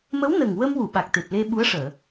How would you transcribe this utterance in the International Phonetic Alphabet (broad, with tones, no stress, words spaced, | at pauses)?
mə˧˥wnə˨˩ŋ wə˧mwu˨˩˨ ɓa˨˩k̚t̪e˨˩p̚le˧ ɓu˧˥ə̯ʂəː˨˩˨